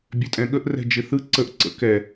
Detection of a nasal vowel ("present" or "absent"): present